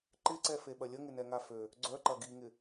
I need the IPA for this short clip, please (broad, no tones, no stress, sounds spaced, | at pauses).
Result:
ǃ ɪ ǀ ɛ f e ɓ ɐ lʲ ə ŋ ɪ n ɛ ŋ a f ø | ɡ͡ǀ œ ǃ ɐ ɡ i ŋ ɪ